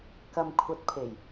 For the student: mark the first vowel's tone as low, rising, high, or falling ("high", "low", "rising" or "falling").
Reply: low